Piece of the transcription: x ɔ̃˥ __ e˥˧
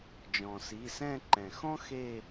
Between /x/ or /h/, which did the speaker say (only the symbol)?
x